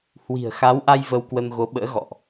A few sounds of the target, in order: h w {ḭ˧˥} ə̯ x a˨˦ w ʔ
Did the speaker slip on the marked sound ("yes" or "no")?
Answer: yes